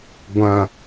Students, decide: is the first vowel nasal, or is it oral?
nasal